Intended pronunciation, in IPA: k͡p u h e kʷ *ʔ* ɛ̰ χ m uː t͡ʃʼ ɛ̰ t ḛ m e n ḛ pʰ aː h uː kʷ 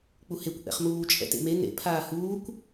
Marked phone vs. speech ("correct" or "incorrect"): correct